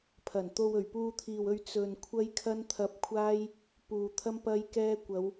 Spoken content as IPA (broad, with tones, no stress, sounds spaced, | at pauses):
pʰ ɐ˨˩ n t̪ o˧ w ɵ˨˩ ɥ p uː˧ t̪ʰ iː˨ w ɵ˧ ɥ t͡s ɵ˧ n kʷʰ ɐ˥ j kʰ ɐ˥ n t̪ʰ ɐ˧ p̚ kʷʰ aː˥ j | p uː˨ t̪ʰ ɐ˥ m p ɐ˥ j k ɛː˥ kʷ ɐ˨˧ w